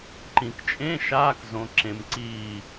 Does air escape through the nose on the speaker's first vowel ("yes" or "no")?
yes